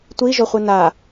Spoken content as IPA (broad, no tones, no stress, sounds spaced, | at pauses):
tʷ i ʒ o χʷ ɨ n a